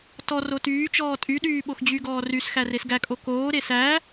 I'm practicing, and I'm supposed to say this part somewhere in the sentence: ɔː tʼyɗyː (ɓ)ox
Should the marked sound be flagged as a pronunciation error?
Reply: no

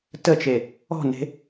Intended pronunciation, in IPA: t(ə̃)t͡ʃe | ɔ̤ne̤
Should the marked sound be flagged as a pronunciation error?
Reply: yes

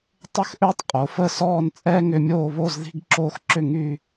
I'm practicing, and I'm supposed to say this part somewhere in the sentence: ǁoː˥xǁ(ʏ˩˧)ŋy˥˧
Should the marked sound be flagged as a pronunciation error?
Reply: yes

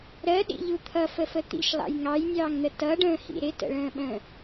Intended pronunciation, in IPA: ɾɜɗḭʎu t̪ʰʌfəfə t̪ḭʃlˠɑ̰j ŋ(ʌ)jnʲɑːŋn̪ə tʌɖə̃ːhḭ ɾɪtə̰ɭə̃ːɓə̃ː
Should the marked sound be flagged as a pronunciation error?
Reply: yes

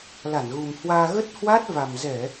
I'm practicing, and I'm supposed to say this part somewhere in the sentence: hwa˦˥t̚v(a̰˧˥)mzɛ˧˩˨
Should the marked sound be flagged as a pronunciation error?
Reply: yes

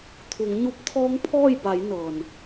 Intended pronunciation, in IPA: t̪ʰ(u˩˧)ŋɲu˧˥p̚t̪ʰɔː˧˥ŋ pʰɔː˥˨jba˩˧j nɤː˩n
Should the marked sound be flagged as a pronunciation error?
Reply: no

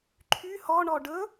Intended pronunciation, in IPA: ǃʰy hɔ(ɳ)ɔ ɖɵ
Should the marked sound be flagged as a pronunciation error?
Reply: no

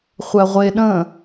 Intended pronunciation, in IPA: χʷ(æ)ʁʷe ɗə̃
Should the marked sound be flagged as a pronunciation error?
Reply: no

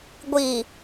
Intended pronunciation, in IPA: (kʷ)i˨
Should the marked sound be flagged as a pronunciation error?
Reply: yes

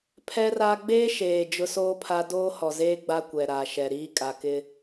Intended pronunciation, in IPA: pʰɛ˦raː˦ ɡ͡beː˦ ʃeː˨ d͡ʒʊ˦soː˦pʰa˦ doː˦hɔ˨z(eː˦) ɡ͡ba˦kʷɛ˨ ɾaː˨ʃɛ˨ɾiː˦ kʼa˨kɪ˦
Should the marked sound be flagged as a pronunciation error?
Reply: no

